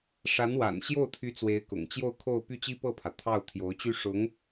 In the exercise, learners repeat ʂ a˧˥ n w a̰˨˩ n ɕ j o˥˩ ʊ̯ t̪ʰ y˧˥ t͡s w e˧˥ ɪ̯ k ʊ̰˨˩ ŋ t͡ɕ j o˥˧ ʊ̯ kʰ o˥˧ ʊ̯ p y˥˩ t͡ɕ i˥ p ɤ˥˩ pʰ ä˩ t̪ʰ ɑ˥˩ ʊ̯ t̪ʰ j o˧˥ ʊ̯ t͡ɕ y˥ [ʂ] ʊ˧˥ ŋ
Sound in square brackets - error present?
no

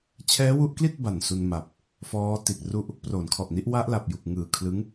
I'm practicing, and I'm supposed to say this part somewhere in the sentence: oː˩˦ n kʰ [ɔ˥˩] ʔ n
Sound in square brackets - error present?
yes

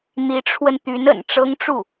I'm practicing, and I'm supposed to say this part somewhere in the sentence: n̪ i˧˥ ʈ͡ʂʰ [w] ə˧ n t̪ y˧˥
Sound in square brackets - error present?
no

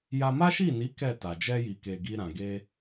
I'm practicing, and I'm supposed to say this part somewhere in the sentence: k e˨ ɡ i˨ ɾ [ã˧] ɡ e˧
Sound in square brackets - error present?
yes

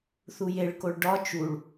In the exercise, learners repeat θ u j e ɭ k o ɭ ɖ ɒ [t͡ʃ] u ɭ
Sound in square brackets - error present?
no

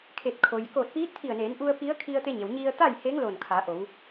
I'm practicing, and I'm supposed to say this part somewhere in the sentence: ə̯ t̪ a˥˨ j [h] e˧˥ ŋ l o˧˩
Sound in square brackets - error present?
no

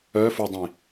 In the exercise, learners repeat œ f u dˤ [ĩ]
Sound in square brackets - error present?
no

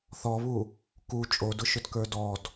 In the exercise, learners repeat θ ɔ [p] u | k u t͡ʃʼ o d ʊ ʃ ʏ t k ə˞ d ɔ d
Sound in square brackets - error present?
yes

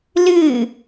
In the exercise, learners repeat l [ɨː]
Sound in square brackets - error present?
no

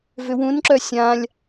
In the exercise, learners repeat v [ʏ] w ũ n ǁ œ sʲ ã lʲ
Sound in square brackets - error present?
no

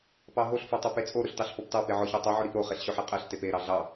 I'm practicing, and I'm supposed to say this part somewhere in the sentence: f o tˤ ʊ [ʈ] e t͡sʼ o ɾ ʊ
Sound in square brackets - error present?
yes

